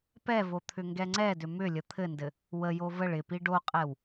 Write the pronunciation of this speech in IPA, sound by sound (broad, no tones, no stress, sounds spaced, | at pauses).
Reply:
p ɛ v o t̪ʰ ʏ ŋ ɡ ɛ ŋ͡ǀ ɛ d ʏ m ʏ lʲ ə t̪ʰ ɘ n d ɘ | w ə j o v ə ɭ ɪ p i ɖ o qʼ ɛ w